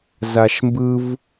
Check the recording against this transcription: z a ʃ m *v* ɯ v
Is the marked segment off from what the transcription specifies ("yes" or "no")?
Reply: yes